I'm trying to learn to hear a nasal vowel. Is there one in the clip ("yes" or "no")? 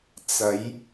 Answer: no